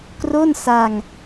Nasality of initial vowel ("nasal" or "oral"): oral